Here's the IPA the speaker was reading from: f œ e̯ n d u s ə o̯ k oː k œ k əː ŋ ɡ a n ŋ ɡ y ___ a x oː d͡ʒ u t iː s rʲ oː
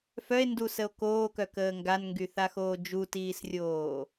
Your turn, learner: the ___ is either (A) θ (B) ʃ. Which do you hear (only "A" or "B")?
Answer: A